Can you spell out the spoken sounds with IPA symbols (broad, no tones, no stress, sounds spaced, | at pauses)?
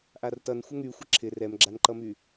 ʔ a r t ʌ n xʷ ə ŋ y xʷ ɪ ǁʰ ɪ r ɛ m ɡ͡ǁ a n ǃ ʌ m y